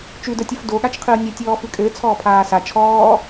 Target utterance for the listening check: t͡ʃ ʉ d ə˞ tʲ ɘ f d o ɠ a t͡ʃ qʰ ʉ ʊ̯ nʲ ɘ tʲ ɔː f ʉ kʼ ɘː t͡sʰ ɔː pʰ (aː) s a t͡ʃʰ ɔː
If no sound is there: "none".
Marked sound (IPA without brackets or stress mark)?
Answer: aː